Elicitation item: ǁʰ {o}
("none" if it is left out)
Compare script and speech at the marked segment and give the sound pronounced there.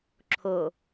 o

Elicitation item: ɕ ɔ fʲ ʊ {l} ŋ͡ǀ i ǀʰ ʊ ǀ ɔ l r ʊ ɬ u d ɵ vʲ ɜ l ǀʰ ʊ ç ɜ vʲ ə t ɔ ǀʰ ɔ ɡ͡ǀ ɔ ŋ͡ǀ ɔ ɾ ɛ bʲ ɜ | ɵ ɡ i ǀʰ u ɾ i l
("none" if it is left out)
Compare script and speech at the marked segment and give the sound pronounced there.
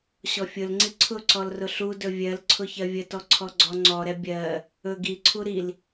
l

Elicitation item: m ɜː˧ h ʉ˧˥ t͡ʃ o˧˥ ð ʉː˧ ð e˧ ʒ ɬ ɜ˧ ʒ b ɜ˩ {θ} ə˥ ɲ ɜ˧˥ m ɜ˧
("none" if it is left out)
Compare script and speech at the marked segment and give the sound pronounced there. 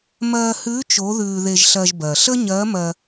ɬ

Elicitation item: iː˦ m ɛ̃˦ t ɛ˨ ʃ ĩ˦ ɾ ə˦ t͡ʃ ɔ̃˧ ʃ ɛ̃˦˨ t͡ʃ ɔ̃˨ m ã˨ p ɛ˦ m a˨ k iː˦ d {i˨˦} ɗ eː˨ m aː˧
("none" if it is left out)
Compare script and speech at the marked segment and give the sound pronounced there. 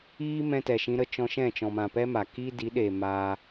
i˨˦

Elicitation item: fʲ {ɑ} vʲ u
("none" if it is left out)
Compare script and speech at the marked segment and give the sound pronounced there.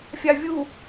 ɑ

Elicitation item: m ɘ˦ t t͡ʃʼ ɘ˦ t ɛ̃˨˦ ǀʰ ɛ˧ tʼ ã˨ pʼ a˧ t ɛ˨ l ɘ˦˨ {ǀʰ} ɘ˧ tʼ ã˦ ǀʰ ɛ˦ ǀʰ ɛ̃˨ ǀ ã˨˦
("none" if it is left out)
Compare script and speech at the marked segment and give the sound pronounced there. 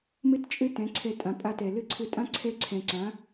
ǀʰ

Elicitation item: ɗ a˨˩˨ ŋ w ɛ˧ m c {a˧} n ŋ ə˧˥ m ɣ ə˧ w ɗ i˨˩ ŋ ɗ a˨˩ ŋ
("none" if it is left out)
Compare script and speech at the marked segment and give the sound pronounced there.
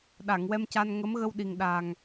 a˧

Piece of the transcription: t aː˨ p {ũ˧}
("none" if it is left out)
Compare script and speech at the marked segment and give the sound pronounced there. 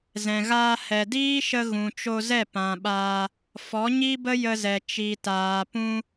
ũ˦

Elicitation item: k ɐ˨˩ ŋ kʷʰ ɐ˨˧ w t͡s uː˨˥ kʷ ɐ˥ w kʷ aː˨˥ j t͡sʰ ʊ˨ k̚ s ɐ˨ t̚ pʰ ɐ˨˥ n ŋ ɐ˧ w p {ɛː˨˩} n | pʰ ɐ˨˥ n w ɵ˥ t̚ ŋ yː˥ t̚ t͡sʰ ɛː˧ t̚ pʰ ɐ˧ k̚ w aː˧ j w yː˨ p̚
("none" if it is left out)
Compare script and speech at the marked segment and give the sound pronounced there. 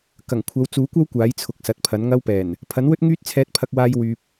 ɛː˨˩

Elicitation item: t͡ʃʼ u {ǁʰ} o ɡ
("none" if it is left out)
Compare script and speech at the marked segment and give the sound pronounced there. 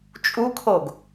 kʰ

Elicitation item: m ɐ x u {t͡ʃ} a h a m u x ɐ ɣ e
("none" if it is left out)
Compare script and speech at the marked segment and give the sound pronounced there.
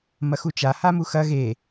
t͡ʃ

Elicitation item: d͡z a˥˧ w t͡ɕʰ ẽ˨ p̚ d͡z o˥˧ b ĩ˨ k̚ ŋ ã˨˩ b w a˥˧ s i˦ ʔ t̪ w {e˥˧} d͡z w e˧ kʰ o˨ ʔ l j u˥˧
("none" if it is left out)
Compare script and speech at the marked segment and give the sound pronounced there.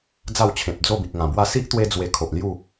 e˦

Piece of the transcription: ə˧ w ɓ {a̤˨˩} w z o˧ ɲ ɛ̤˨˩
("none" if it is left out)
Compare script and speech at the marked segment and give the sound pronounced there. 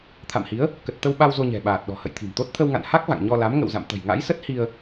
a˧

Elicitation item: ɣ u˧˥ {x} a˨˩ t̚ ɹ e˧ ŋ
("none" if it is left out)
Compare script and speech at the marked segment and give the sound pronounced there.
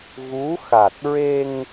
x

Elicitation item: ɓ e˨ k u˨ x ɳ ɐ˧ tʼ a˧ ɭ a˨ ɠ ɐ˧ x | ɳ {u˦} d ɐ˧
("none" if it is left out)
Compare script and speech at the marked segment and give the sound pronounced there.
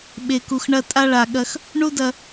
u˦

